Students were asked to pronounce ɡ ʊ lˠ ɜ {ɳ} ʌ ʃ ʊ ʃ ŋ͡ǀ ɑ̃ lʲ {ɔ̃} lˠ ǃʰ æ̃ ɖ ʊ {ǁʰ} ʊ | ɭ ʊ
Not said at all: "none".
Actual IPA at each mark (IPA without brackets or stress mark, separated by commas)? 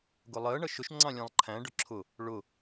ɳ, ɑ̃, ǁʰ